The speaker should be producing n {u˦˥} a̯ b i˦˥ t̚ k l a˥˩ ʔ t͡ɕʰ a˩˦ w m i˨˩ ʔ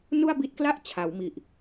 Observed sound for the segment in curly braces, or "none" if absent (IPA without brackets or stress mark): u˥˩